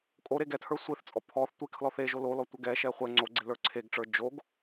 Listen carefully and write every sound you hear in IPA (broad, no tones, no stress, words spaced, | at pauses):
kʼo ɾeɡɛtʰə˞ sʷeθt͡sʼɔ pʰɔθ tʷekʰlɔ θeʒo lolɔ tʷɛɡɛʃɛ χʷɛ ŋ͡ǀoɡ͡ǀe lə˞ǀʰeɡʈ͡ʂə˞ d͡ʒoɡ